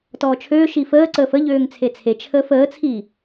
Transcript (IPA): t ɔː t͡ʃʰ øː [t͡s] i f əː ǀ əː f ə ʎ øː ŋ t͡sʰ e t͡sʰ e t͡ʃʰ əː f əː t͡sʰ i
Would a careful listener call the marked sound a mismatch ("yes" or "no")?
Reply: yes